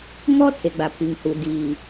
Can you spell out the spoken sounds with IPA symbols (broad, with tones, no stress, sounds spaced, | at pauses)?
ŋ ɔ˦ tʰ e˨ ɡ͡b a˨ pʰ i˨ ŋ h u˨ d iː˨